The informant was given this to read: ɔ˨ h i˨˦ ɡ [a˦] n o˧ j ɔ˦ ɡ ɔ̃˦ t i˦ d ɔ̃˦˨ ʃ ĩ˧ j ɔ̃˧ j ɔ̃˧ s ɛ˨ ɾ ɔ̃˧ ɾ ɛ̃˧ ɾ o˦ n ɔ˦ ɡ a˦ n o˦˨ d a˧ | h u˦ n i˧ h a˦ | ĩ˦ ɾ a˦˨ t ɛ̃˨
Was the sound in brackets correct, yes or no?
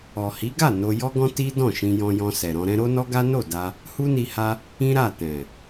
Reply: no